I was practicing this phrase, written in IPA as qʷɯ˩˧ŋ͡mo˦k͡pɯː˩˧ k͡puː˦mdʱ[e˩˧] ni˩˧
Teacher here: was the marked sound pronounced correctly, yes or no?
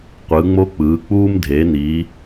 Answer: yes